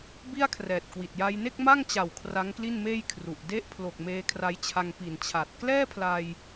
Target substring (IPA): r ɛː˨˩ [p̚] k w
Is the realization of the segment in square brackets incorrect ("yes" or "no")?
yes